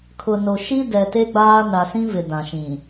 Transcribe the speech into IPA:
kʰʊ˨no˨ʃi˦ dɛ˨te˦ɡ͡baː˦ na˨sĩ˦vɪ˨ dã˨ʃĩ˨

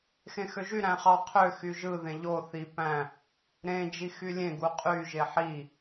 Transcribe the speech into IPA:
xẽxøʒy ɾæ̃χɑ qʰø xyʒɯ ðẽʎo θi pæ̃ | ɾẽ d͡ʒixylʲẽ ɡuqʼy ʒeħi

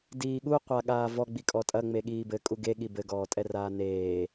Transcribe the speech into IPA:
diːɠu qʷaɠaːvɔ ɡ͡bikʼɔtʼɐ ŋ͡meɠiːbɘ kʼuɡe ɠibɘ ɡɔːtʼɛraːneː

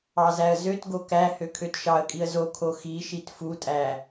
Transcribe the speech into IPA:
ɑzæə̯zøtɡo kæ høkʰøtʃɑə̯kʼiə̯ zokʰo xiʃit futʼæ

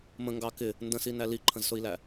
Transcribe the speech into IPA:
mə̃ŋɡɑ kɪ | ndə̃sinæ liǃʰə̃zsʊi̯læ

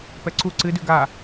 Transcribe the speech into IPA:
pɛǀu ǀɨdʉ ɡa

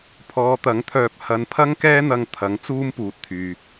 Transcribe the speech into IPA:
pʰɔː˨˧t̪ɐ˨˥ŋt̪ʰœː˧p̚ hɐ˧npʰɐ˥ŋkɛː˥n̪ɐ˧ŋ t̪ʰɐ˨˥ŋ t͡suː˥mpuː˨t̚t̪ʰyː˨

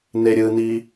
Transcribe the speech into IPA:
neɾʲɯni

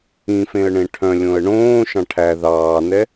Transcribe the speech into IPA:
ĩfẽə̯ɳẽ ʈʰœ̃lʲõə̯ ɳõːʃɑ̃ ʈʰæ ðɑːnɛ

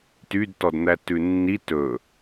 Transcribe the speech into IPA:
tydtɔdn̪æ tʉnːi tɵ

